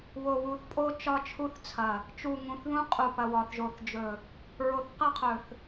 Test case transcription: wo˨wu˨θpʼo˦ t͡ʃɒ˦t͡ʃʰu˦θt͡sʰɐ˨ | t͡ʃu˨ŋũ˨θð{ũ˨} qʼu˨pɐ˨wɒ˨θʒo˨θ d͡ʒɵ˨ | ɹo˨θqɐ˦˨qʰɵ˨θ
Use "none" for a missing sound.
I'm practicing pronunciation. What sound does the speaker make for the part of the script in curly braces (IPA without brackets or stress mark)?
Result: ũ˦